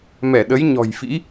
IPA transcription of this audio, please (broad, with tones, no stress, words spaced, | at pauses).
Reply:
mɛ˧˩ɗə˨˦j ɲɔ̤˨˩jfḭ˧˥